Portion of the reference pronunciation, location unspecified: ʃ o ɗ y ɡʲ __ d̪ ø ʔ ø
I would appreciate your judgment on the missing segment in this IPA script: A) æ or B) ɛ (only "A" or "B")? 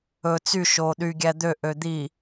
A